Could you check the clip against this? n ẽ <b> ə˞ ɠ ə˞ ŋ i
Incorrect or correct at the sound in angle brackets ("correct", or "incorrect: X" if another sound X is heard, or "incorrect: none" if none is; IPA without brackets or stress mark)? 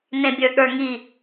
incorrect: bʲ